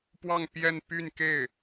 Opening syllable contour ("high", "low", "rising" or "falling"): falling